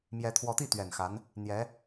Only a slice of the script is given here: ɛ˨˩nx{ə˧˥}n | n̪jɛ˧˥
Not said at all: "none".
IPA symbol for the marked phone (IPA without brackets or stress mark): a˧˥